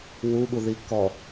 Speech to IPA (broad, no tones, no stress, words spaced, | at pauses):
wuɠuði kɔ